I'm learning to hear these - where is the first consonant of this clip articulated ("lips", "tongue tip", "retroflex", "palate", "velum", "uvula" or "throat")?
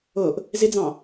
throat